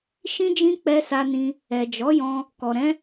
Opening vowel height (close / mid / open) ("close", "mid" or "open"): close